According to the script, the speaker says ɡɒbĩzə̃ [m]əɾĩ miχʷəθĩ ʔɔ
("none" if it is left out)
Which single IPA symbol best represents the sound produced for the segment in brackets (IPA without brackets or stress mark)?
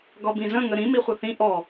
ŋ